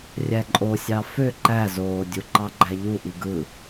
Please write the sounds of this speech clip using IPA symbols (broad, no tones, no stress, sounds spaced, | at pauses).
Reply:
rʲ æ ǃʼ o sʲ ɑ f ø ǃ æ z oː dʲ u ǃ ɑ ɡ͡ǃ æ ʎ u ʔ i ɡ ɯ